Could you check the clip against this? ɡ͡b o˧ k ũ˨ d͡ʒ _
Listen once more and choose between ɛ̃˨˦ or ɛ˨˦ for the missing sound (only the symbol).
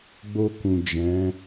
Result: ɛ̃˨˦